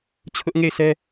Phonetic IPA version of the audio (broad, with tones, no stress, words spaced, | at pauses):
t͡ɕʰʊ˦ʔŋe˦˨ɪ̯sʰɛ˦